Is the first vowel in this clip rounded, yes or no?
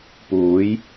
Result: yes